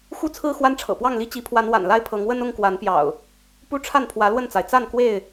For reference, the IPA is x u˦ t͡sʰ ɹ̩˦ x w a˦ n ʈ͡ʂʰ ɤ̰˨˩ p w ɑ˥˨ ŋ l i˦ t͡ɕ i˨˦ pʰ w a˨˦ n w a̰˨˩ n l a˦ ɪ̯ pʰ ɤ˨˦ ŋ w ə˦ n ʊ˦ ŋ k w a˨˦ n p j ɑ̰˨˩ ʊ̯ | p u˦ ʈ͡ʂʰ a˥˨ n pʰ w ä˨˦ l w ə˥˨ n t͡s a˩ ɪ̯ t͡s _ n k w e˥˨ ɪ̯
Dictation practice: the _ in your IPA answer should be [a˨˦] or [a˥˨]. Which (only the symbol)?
a˥˨